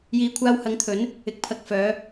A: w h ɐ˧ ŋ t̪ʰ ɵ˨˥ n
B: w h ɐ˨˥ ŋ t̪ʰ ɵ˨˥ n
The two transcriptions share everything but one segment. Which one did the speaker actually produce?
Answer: B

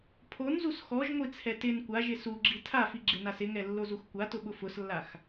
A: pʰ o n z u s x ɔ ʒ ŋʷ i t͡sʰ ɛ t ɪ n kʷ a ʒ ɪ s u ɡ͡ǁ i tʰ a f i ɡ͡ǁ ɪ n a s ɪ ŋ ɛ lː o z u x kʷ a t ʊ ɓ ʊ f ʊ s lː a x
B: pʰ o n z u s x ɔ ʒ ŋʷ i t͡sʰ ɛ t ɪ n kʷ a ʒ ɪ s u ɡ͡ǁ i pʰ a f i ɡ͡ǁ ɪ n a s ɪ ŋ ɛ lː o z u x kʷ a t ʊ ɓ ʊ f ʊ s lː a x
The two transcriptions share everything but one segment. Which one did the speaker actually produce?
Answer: A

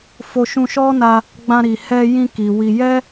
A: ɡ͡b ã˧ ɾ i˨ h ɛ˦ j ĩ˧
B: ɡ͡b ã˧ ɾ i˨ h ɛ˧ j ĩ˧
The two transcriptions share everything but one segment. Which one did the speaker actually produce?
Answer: B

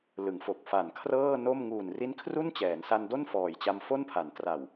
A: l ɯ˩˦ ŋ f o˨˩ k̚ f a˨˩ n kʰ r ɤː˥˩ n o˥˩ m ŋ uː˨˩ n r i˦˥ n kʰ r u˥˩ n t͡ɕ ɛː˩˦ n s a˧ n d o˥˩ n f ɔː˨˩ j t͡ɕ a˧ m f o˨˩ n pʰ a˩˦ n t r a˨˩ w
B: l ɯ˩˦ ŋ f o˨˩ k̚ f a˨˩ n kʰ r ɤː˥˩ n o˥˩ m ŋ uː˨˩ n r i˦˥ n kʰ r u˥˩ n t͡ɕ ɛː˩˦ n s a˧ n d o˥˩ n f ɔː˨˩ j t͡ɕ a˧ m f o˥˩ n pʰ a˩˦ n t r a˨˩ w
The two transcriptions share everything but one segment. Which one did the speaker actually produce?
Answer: B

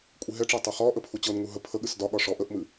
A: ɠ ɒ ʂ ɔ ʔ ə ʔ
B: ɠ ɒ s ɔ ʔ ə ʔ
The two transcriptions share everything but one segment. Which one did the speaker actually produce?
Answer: A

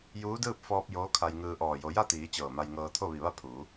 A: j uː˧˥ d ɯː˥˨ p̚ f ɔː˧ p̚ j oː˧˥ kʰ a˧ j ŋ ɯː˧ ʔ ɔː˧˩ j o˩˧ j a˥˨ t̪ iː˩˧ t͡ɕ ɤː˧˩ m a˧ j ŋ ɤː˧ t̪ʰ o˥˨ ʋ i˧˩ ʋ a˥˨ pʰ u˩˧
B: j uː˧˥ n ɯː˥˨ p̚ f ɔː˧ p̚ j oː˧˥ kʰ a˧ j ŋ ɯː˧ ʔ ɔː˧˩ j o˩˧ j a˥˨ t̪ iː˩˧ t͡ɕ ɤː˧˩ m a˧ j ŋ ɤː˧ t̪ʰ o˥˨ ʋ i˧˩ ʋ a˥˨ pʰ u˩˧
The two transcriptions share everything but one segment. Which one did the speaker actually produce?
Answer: A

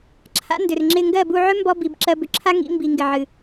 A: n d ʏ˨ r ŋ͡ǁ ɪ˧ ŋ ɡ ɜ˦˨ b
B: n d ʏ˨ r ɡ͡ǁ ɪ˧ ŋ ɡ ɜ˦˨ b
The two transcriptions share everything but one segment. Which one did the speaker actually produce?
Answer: A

